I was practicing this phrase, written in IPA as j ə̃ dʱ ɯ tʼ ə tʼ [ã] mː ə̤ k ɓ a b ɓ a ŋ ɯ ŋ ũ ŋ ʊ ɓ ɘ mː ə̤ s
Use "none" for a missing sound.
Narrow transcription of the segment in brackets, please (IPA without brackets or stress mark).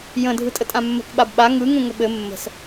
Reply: ã